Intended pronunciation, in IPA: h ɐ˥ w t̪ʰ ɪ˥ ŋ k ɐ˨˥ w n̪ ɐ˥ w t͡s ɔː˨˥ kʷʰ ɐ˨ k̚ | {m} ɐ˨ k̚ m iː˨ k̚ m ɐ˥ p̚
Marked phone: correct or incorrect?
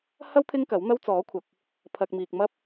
incorrect